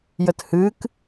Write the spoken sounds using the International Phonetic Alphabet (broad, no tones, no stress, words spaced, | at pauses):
jəthɨk